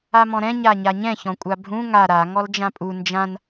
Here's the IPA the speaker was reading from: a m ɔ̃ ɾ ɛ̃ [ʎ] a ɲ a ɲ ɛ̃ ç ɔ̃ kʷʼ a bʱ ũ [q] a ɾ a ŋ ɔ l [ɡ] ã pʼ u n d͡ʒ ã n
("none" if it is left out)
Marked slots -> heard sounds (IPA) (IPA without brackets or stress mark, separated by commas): ɲ, ŋ, d͡ʒ